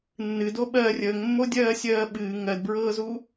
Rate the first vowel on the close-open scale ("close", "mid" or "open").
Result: close